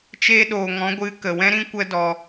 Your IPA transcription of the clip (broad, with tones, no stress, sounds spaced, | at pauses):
t͡ʃ eː˧ ɗ oː˨ ŋ ɔ̃˨˦ ɡʷ ɨ˨˦ k ə˨ w ɛ̃˦ ɾ ĩ˦ kʷ ə˦ d ɔ˧